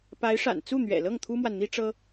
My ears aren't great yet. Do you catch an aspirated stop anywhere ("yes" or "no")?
yes